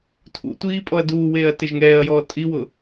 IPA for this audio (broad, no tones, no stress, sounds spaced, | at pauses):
tʰ ṵ tʷ iː pʼ ɔ ɐ̯ d uː w eː ɐ̯ t ɪ ʒ ŋ ɛː ɐ̯ j ɔː tʼ i w ʊ